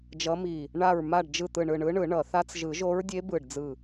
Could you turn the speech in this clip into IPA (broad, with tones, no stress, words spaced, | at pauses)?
d͡ʒʌ˧˥mi˧˩ | ɳa˧˩ɹma˧˩ɖd͡ʒɯ˧˩ t̪ɯ˧˩ɳɯ˧˩ɳɯ˧˥ɳɯ˨˩˦ ɳʌ˨˩˦θa˧˥t͡s ʒɯ˨˩˦ʒo˧˥ɹdʲe˧˥ bɯ˧˩ɖd͡zɯ˧˩